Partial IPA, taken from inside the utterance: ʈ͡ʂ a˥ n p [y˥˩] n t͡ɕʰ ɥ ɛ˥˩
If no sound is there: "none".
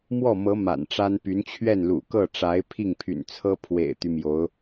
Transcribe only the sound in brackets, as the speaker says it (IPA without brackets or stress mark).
y˧˥